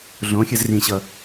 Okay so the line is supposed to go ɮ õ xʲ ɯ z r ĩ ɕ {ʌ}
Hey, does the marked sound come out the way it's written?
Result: yes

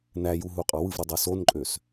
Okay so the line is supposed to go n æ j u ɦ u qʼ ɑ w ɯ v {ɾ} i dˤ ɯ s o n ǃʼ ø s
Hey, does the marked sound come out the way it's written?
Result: yes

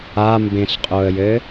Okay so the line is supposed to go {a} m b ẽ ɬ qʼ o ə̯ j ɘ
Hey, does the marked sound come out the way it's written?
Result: yes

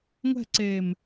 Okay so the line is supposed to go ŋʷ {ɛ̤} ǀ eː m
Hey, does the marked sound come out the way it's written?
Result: yes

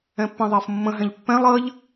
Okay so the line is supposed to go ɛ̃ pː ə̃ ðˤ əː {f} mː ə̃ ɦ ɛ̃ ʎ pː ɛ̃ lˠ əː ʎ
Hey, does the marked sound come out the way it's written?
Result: yes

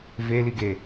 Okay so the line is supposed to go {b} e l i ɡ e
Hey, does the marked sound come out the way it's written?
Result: no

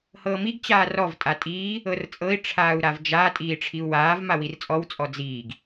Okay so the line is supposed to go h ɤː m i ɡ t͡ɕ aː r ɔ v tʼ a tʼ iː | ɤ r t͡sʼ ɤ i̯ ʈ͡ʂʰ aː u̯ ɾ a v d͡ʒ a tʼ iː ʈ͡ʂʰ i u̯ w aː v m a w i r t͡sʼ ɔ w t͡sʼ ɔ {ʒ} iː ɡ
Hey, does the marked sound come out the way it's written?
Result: no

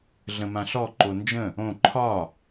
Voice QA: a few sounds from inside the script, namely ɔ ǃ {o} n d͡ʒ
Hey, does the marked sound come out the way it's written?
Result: yes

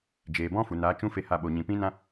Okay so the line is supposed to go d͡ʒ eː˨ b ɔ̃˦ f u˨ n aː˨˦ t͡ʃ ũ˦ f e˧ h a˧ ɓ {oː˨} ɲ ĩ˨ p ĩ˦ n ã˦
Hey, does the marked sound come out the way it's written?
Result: no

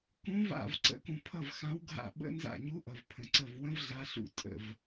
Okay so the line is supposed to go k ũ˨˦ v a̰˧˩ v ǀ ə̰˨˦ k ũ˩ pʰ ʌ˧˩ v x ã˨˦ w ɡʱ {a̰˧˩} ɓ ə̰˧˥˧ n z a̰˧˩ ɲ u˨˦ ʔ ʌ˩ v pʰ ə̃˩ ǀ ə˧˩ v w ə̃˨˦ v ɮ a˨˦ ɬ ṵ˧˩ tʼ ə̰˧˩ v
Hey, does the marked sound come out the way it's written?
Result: yes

